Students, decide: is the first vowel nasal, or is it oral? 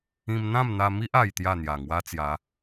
nasal